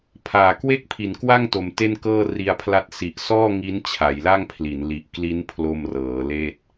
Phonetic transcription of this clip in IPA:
pʰ aː˨˩ k w e˥˩ k̚ pʰ i˨˩ n k w a˥˩ ŋ t o˧ m t e˥˩ n k ɤː˥˩ r i˧ a̯ pʰ l a˦˥ t̚ s i˨˩ ʔ s ɔː˥˩ ŋ i˦˥ n t͡ɕʰ a˩˦ j l a˥˩ ŋ pʰ l i˩˦ n l i˨˩ ʔ k l i˦˥ n pʰ l o˧ m r ɤː˩˦ l eː˥˩ t̚

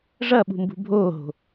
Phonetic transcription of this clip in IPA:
ʐ ɐ ɓ ṳ m b ṳ bʱ oː ɦ o̤

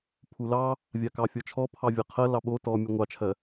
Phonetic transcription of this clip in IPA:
pʰ u l ɑ | vʲ a k ɑ fʲ ɔ t͡ʃʰ ɔ pʰ ɑ vʲ a qʰ ɜ l ɑ ɓ o t ɔ mʲ u ŋʷ ɑ t͡ʃʰ ɜ

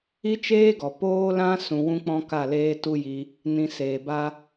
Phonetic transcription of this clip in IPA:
i˦ t͡ʃ eː˦ ɡ ɔ˨ p oː˦ l ã˦ s ũ˧ w ũ˦ k͡p ɔ̃˦ k a˦˨ l eː˦ t u˦ j i˧ | n ĩ˧ s eː˨ b a˦

